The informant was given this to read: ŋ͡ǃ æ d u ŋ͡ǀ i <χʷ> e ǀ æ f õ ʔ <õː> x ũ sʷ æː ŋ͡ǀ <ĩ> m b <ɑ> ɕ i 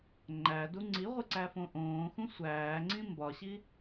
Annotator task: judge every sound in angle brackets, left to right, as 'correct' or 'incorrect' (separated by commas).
incorrect, correct, correct, incorrect